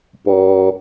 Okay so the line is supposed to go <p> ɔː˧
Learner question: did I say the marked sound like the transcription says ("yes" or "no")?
yes